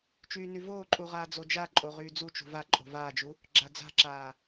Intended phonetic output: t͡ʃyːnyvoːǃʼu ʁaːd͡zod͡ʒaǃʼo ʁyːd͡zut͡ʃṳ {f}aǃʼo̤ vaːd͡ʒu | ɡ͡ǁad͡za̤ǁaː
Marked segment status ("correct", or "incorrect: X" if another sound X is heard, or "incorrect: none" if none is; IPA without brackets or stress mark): incorrect: v